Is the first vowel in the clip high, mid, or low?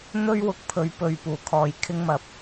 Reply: mid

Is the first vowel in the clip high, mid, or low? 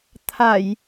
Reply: low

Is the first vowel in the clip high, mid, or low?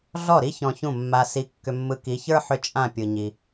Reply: mid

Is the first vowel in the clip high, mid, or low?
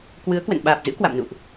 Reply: high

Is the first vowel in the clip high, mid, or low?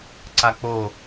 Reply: low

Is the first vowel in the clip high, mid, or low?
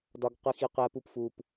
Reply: low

